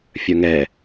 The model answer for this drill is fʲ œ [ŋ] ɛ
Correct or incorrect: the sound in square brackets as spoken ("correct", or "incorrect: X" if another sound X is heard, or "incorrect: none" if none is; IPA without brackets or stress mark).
correct